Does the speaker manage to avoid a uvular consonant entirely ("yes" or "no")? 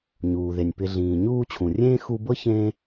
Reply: yes